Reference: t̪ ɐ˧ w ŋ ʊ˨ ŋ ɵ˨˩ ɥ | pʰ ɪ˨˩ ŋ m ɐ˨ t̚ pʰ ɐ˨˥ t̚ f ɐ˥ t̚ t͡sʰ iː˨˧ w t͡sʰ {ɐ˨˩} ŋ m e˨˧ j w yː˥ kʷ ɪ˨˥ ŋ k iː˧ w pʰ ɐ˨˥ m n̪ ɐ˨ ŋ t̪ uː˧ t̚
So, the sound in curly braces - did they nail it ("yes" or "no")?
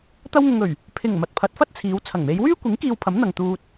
yes